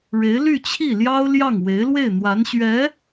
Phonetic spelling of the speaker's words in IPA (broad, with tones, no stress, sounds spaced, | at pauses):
ɻ e˧˥ ɪ̯ l y˥˧ t͡ɕʰ i˥˩ l j ɑ˥ ʊ̯ l j ɑ˥˩ ŋ w e˧˥ ɪ̯ l w e˥˩ ɪ̯ n̪ w a˧˥ n ɕ ɥ ɛ˧˥